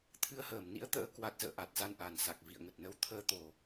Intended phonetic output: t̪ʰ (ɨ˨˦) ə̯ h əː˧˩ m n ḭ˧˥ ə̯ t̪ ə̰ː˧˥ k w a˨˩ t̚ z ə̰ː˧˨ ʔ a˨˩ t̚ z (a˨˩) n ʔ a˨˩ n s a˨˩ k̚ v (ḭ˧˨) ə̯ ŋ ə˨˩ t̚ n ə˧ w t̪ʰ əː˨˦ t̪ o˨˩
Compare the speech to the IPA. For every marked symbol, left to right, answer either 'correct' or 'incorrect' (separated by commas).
correct, incorrect, correct